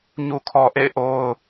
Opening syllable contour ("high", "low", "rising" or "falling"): low